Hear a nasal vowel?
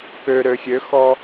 no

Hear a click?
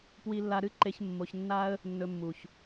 yes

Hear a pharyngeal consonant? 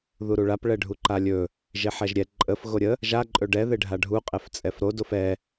yes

